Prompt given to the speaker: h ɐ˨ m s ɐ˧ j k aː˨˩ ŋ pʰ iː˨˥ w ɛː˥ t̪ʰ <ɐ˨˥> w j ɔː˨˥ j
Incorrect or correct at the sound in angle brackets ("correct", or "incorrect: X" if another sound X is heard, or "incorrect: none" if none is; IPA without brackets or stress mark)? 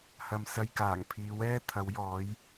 correct